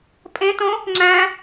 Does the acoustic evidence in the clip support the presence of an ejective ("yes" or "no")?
yes